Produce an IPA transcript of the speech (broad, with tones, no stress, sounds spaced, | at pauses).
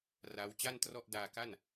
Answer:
r a˦˥ w t͡ɕ a˥˩ n t r ɔ˥˩ ʔ d aː˧ k a˥˩ n